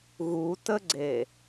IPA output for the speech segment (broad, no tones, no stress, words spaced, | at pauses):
ɣutəɡ͡ǀe